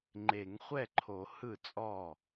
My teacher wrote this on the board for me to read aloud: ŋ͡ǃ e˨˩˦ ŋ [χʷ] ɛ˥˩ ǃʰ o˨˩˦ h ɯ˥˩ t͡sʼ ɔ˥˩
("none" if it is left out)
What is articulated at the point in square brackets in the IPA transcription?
χʷ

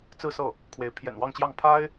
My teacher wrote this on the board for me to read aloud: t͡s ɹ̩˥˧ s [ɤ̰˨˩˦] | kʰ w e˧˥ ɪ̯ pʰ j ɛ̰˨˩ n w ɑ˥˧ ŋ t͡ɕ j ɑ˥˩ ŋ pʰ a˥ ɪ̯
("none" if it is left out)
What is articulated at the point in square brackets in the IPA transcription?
ɤ˥˩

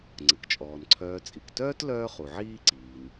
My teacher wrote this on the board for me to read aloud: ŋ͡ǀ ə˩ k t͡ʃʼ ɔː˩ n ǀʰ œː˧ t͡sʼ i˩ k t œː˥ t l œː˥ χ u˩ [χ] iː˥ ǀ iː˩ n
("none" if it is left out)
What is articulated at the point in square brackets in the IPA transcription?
ʕ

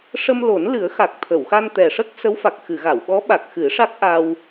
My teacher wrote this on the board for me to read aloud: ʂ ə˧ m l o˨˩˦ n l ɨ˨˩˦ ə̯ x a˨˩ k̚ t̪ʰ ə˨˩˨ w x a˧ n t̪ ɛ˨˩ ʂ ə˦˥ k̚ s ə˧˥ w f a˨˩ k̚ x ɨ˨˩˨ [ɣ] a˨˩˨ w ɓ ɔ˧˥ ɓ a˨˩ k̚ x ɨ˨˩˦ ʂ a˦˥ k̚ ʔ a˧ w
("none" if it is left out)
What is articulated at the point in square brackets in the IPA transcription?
ɣ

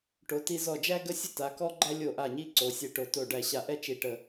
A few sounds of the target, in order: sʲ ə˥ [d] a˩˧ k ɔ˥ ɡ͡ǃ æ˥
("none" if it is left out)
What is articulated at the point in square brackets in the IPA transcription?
t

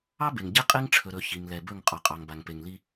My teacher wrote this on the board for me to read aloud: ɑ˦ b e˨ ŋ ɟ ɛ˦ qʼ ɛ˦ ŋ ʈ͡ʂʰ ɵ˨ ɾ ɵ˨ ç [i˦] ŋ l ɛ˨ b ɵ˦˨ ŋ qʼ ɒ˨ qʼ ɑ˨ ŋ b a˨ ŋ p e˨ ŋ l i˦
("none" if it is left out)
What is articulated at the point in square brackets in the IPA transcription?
i˨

